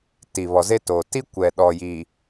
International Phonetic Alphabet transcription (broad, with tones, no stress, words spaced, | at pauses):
tiː˨βɔ˨ze˦toː˨ ti˦ kʷɛ˨ ɗɔ˨ji˨